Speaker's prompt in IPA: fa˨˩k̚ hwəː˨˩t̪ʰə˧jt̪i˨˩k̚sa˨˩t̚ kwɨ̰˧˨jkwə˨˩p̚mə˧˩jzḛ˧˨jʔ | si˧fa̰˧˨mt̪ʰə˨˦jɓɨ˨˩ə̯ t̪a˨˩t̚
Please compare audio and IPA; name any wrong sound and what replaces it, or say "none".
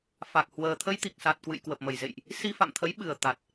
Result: none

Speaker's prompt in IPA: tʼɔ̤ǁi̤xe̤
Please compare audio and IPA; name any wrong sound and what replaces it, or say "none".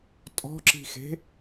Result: none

